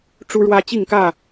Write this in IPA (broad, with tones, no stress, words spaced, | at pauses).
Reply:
ʈ͡ʂu˦ɻwä˦ t͡ɕi˥˨ŋkä˥˨